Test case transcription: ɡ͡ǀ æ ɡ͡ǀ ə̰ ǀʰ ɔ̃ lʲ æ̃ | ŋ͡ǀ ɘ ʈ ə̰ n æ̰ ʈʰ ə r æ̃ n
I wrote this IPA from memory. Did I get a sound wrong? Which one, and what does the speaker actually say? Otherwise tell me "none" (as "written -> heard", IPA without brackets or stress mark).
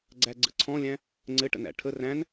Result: none